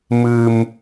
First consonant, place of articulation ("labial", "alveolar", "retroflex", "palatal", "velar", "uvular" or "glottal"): labial